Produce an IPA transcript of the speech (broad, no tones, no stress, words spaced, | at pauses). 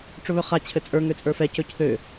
ʈ͡ʂɵβɵχa t͡ɕʰɘt͡sʼə˞ ŋøt͡sʼə˞fɛ cɵcθø